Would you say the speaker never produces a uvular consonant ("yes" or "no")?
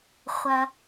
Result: no